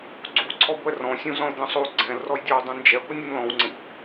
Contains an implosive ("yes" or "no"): no